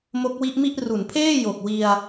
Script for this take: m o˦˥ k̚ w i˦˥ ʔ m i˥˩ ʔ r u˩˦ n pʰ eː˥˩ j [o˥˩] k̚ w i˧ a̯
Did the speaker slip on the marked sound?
yes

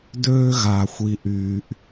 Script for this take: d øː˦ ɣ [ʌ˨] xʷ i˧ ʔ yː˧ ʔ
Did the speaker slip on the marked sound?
yes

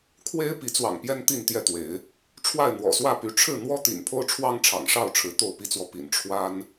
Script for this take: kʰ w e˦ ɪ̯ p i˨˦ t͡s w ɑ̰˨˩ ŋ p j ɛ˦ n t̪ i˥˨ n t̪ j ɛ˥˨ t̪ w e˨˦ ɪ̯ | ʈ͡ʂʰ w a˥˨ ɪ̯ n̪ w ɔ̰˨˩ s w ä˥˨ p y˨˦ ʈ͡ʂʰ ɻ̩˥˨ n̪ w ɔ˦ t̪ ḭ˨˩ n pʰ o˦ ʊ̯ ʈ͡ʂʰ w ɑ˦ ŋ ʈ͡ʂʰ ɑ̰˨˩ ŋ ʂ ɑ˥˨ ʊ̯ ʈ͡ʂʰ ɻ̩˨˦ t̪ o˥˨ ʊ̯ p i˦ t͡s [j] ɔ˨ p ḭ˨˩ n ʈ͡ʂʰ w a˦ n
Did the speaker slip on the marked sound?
yes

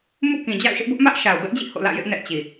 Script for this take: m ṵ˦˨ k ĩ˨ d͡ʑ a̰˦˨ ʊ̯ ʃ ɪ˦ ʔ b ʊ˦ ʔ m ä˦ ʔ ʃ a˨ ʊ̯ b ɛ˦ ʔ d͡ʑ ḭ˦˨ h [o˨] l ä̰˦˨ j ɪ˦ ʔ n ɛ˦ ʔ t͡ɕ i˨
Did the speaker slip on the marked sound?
yes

